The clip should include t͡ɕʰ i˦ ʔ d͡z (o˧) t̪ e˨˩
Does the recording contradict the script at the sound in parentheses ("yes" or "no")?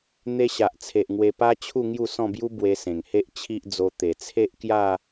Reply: no